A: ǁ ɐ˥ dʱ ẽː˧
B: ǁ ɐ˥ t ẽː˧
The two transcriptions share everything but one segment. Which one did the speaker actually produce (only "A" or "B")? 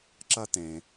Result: B